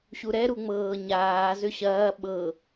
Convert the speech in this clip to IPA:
ɕ u ɾ ɛ ɾ u ŋ͡m ɤː ɲ aː z ʏ ɕ ɐː ɓ ɤ

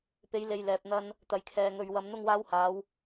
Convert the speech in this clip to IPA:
p e˨˥ j l e˨ j l ɛː˨ p̚ n̪ ɐ˧ n | t̪ ɐ˨ j kʰ ɛː˨ ŋ ɵ˨ ɥ w ɐ˧ m n̪ ʊ˥ ŋ w aː˧ w h aː˨˧ w

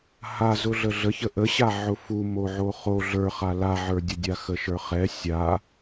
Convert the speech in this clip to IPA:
h a z ʊ ɮ ə ɮ ə ç ə ʔ ə ɕ a ʕ ʊ f u m o ʕ o χ o ɮ ə˞ χ a l a ʕ ə˞ dʲ ə dʲ a x ə ʃ ə˞ χ ɛ sʲ a

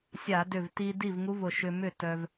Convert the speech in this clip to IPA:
sʲ a˧˩˧ d ʏ˧˩ v t i˧ d i˥˨ v ŋ u˦˥ v ʊ˧˩ ʃ ʏ˧ m ʏ˥˨ t œ˧ v

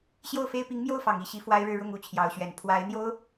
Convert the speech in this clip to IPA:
ɕ j o˥˩ ʊ̯ f e˥ ɪ̯ p i˧˥ ŋ m j o˥˩ ʊ̯ f ɑ˨˩ ŋ i˧˥ ɕ i˧˥ f w a˥ ɪ̯ ɻ ɻ̩˥˧ ɻ ʊ˥˩ ŋ u˥ t͡ɕʰ j ɑ˧˥ ʊ̯ ɕ ɥ ɛ˨˩ n pʰ w a˧˥ ɪ̯ n̪ j o˥ ʊ̯

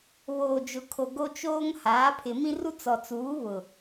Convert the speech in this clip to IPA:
β oː˨ d͡ʒ ʊ˨ kʰ o˨ ɡ o˦ t͡ʃ oː˦ ŋ h aː˨˦ pʰ ɪ˨ m ĩ˦ r u˦ t͡s ɔ˨ t͡s uː˨˦ β ʊ˨

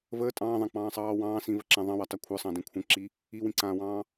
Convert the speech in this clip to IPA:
v əː tʼ ɑ̃ː ðˤ ã k͡p ɑ̃ː sˤ ɑː w ɑ̃ː s ĩ v ə ǁ ã ðˤ ɑ̃ w ɑ t ɑ kʷʰ ə˞ sˤ ɑ̃ d ĩ kʷʰ ə̃ ǁ i | i w ĩ ǀ ãː w ɑ̃ː

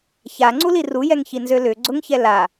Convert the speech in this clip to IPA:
ç a ŋ͡ǀ u l i r u j ɛ ŋ ç i n z ø l ʏ ɡ͡ǀ ʊ ŋ ç ɛ l a

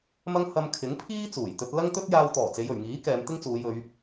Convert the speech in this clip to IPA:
m ɐ˥ ŋ h ɐ˧ m kʰ ɪ˨˥ ŋ pʰ iː˥ t͡s uː˨˩ j t̪ ɵ˧ t̚ l ɐ˥ ŋ t̪ ɵ˥ t̚ j aː˧ w t̪ ɔː˨˩ t͡s e˨˧ j ɵ˨˩ ɥ ŋ iː˨˥ k ɛː˨˧ m t̪ ɪ˥ ŋ t͡s uː˨˧ j ɵ˨˧ ɥ

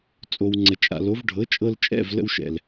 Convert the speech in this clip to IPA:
t͡sʼ o˩ w ŋ͡ǀ ə˩ t͡ʃʼ a̰˩ l o˩˥ v ɖʱ ɤ˩˥ t͡ʃʼ ɤ˧ l t͡ʃʼ ɛ̰˥˩ v l ə̰˧ w ʃ ɛ̰˩ l

